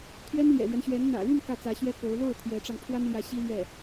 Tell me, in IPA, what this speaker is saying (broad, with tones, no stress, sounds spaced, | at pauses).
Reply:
t̪ʰ ɥ ɛ˥ n l j ɛ̰˨˩ l ɥ ɛ˦ n ɕ ɥ ɛ˧˥ n n̪ ä̰˨˩ l y˥˧ n k ä˥˩ t͡s ä˧˥ ɕ ɥ ɛ˥ k o˧˥ ʊ̯ l o˥˩ ʊ̯ t̪ʰ j ɛ˧˥ ʈ͡ʂ ɑ˧ ŋ pʰ w a˥ n l j ä˧˥ ɕ i˥ l ɥ ɛ˥˩